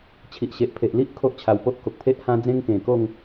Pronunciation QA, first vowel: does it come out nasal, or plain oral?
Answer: oral